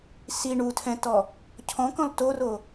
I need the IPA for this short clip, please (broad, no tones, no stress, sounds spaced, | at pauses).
s i ɳ u tʰ ɛ̃ t ɔ | cʰ ɔ̃ k ɔ̃ l t o r o